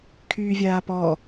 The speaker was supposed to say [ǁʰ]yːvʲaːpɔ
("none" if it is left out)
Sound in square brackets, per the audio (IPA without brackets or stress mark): kʰ